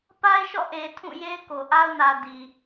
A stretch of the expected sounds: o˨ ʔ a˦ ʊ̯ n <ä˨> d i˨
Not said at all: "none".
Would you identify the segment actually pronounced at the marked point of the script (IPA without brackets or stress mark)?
ä˨